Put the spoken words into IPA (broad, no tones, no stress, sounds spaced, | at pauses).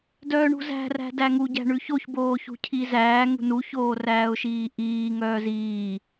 d œː ɳ ṳ z æ̤ r æ̤ d æ ŋ u ɟ æ̤ ɳ ʉ ç o ç b oː ç ṳ cʰ i z æː ŋ ṳ n u ç oː r æː ʊ̯ ʃ iː ʔ iː ŋ œː z iː